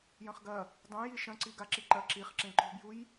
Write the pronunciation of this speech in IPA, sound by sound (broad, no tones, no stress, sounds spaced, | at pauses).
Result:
j ɐ̃ χ ɡ ɐ | dˤ ũ j i ʃ ɐ̃ ǀ i ɡ a ǁ i ǃ ɐ ǁ i χ ǁ ẽ ǃ o̤ b j u j